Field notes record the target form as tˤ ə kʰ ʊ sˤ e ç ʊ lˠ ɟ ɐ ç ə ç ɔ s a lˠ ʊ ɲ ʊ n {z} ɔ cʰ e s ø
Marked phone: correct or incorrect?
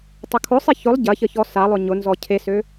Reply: correct